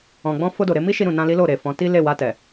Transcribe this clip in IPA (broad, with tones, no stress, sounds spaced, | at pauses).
ɔ̃˨ ɡ͡b ɔ̃˧ f o˧ d o˨ ɾ e˧ m i˦ ʃ i˧ ɾ ũ˨ n ã˧ l i˦ l o˦˨ ɾ e˨ f ɔ̃˨˦ t i˦ l e˦˨ w a˧ t ɛ˨